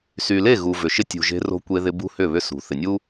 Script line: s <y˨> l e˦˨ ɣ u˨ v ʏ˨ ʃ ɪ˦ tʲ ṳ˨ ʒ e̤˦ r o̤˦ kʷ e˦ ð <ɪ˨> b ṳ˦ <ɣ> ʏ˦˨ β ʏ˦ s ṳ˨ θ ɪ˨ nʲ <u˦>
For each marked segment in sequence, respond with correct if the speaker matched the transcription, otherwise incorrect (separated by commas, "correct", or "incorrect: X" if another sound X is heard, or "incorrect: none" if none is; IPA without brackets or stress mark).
correct, incorrect: ɪ˦, incorrect: h, correct